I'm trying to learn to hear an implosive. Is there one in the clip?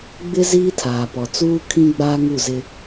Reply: no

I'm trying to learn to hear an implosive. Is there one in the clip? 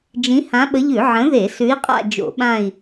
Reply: yes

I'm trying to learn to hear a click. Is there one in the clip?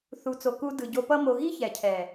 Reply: no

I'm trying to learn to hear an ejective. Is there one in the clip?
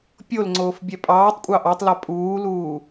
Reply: yes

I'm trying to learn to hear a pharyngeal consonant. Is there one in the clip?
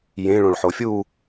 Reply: yes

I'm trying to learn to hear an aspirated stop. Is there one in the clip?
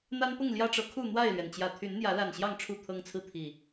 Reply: yes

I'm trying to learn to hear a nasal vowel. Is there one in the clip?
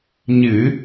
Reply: no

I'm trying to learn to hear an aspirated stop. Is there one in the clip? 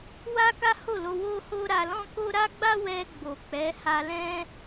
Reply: no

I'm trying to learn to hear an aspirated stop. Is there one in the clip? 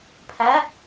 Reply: yes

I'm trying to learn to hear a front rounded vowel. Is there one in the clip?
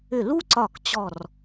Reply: yes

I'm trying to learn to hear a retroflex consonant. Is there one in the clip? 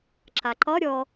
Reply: no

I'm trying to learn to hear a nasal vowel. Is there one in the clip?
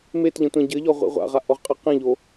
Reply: yes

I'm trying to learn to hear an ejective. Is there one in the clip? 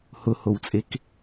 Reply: yes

